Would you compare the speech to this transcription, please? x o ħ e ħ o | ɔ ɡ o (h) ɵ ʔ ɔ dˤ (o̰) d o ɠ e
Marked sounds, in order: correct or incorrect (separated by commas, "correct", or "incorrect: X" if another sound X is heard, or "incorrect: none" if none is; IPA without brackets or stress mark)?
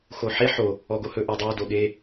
correct, incorrect: o